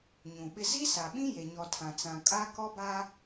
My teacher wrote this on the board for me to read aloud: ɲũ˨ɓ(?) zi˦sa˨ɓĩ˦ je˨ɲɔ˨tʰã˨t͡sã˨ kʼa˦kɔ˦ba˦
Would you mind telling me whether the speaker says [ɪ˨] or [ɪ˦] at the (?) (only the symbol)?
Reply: ɪ˦